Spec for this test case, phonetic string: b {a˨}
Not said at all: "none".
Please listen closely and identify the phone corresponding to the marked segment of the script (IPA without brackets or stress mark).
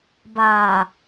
aː˨